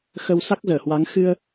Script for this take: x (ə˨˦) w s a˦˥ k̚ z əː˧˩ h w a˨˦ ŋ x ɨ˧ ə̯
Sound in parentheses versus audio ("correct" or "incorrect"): incorrect